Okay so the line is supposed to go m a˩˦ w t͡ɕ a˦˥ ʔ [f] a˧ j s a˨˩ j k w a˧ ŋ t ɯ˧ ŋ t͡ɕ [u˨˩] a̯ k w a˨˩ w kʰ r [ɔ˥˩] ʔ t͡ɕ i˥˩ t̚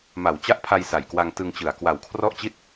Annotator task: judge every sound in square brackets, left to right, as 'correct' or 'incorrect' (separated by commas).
incorrect, incorrect, correct